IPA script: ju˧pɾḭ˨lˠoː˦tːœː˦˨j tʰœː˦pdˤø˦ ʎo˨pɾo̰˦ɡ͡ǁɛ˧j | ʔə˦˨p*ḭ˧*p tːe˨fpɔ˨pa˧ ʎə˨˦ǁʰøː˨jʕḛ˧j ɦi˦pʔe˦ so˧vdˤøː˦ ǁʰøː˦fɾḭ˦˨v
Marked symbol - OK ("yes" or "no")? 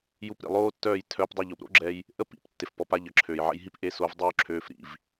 no